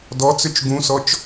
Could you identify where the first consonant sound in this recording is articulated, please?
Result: alveolar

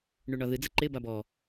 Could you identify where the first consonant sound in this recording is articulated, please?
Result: retroflex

